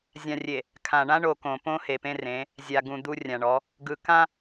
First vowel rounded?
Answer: no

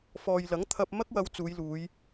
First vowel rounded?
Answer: yes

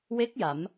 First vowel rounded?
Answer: no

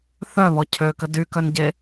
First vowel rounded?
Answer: yes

